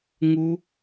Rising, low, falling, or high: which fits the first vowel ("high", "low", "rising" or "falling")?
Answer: high